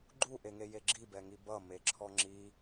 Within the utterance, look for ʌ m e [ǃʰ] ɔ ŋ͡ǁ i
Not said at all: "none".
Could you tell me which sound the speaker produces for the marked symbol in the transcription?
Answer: ǁʰ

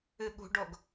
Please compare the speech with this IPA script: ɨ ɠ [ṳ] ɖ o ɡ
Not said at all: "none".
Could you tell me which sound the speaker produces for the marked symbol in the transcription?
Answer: ṳ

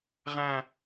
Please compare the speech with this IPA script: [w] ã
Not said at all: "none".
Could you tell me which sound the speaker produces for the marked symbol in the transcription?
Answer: ʁ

